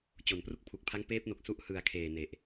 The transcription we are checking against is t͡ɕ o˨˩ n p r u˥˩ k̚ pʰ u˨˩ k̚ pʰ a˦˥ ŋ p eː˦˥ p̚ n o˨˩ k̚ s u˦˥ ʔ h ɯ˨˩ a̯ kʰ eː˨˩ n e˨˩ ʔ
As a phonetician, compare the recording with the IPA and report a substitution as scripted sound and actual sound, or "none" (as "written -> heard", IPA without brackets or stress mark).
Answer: none